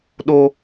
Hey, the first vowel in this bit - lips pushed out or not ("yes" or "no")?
yes